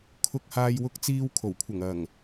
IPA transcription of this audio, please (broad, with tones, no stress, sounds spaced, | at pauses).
kʰ ʊ˧ k̚ h aː˧ j w ʊ˧ k̚ t͡s iː˧ w kʰ o˨˩ w kʷʰ ɐ˨˩ ŋ ɐ˨˩ ŋ